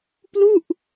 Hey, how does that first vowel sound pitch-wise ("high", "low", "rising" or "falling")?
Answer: falling